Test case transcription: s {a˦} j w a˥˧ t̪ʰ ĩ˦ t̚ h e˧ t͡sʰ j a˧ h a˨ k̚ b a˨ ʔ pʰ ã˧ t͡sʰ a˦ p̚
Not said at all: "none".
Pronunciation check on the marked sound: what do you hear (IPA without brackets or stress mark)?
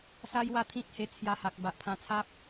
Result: a˦